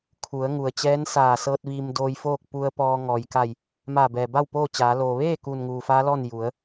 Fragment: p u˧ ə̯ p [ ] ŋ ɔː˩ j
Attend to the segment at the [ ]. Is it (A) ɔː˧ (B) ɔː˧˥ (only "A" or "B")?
A